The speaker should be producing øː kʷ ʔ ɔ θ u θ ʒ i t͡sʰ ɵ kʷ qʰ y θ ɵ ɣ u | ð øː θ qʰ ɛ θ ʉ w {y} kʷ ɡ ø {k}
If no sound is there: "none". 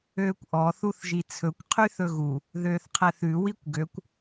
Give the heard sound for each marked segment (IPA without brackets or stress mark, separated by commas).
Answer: i, kʷ